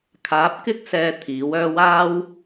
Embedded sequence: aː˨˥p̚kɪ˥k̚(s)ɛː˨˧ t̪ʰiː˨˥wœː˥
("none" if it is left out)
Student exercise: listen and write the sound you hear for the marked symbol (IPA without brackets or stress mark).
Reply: s